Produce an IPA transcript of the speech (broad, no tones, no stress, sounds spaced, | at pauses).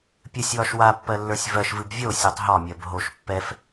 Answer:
pʲ ɨ sʲ w ɒ ʃ w a pː ɜ lː ə˞ sʲ v ɜ ʃ v ɨ b vʲ o sʲ o tˤ ɦ ɒ mʲ ɜ b ɦ o ʃ pː ɛ f